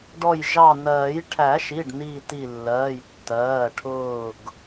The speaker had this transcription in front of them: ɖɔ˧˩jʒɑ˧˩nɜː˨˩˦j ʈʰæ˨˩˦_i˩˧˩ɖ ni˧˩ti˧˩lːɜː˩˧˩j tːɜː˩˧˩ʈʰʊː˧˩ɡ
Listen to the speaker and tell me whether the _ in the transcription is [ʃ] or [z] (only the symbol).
ʃ